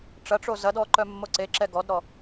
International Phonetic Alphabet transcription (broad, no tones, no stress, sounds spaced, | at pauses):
ʈ͡ʂ ɐ ʈ͡ʂ o z ɐ d ɔ ǃ œ mː o ǀ e ǁ ɛ ɡ ɔ d ɾ ɔ